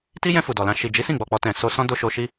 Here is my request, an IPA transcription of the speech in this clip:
t i˦ j ɛ̃˧ f u˨ d ɔ˨ l ã˧ ʃ i˨ d͡ʒ i˨˦ s ĩ˦˨ ɡ͡b ɔ˨ k͡p ɔ˧ t ɛ̃˨ s o˧ s ɔ̃˦ d o˦ ʃ o˧ ʃ i˦

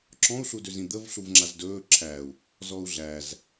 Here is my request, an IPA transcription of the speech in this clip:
ǁ ɔ̃ u̯ ɬ u d ø z ĩ d̪ ə v ɬ u v ŋ͡ǁ a z d ɵː ǁʰ æ u̯ | z ɔ u̯ ɮ æ z

